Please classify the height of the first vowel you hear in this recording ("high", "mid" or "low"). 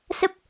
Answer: mid